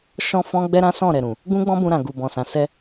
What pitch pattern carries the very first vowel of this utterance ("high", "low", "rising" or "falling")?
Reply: high